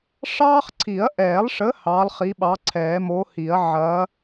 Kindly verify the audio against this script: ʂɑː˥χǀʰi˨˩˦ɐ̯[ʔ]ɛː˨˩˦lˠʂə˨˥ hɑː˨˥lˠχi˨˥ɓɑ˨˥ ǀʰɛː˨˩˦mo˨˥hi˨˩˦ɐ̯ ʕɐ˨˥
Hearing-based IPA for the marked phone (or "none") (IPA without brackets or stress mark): ʔ